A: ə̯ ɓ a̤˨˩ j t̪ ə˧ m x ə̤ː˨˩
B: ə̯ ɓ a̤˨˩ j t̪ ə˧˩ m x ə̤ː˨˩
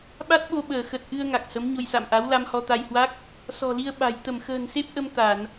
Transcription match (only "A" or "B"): B